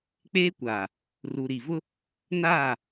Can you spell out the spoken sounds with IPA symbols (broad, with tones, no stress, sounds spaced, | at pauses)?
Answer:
k͡p eː˦ kʷ aː˨ | r u˨ ɾ i˨ v ʊ˦ | n aː˦˨